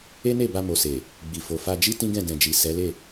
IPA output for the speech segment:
e˦ne˦˨ba˧ mo˨se˨ | ɡ͡bi˨fo˨ fa˧d͡ʒi˦ tĩ˦ɡɛ̃˦˨ dɛ̃˨d͡ʒi˨ sɛ˨˦le˦˨

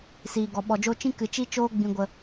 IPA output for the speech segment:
siː˨ɡɔ˨ ɓɔ˨d͡ʒo˧ t͡ʃĩ˦kɨ˨ t͡ʃi˦ t͡ʃoː˧ɡ͡bĩ˨ɡʷə˨

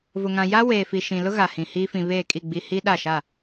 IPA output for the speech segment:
vʊ˨ŋã˨ ja˦ weː˨fi˨ ʃĩ˨lʊ˦ ɣa˨hĩ˨ hiː˦ fĩ˨βeː˦˨kʼi˦˨ ɡ͡bi˦ hi˦ɗa˦˨ʃa˦˨

